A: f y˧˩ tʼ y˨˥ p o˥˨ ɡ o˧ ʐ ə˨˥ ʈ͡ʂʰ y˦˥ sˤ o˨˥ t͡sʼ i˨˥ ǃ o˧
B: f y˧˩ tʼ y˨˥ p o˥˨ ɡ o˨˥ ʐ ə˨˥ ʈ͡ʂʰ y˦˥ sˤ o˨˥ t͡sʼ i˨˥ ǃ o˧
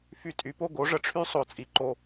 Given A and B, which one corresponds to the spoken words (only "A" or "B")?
B